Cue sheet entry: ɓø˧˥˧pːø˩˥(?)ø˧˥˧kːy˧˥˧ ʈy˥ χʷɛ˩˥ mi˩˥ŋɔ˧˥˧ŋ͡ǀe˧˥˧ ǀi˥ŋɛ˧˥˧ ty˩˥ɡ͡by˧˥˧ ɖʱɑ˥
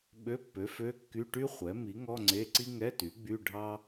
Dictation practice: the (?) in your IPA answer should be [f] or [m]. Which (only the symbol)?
f